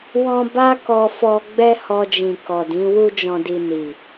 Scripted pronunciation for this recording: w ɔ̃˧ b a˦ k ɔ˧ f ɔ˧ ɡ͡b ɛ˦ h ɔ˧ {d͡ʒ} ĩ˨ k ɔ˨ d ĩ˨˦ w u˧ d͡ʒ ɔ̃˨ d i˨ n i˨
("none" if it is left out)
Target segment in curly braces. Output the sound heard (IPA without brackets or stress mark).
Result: d͡ʒ